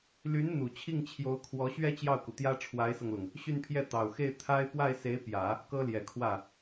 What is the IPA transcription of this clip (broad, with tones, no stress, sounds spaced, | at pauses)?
l y˧˥ n n̪ u˨˩ t͡ɕʰ i˥˩ ŋ t͡ɕʰ j o˧˥ ʊ̯ kʰ w ɔ˧˥ ɕ ɥ ɛ˥ t͡ɕ j ɑ˥˩ ʊ̯ k u˩ t̪ j ä˥ ʈ͡ʂʰ w a˧˥ ɪ̯ s ɤ˧ ŋ l ʊ˩ ŋ | ɕ y˥˧ n pʰ j ɛ˥˩ t̪ ɑ˨˩ ʊ̯ x e˥˩ ɪ̯ t̪ʰ a˥ ɪ̯ p w a˥˩ ɪ̯ s e˧˥ ɪ̯ p j ä˨˩˦ | k ɤ˥ l j ɛ˨˩ kʰ w ä˥˩